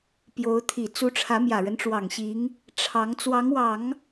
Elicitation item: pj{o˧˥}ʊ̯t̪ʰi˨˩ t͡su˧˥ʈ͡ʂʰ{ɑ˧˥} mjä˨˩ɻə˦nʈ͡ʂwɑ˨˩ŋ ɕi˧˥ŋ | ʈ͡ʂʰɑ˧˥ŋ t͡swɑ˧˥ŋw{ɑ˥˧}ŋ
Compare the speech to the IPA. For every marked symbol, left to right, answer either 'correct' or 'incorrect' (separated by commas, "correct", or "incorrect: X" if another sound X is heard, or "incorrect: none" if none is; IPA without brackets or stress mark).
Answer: correct, incorrect: ä˧˥, incorrect: ɑ˨˩˦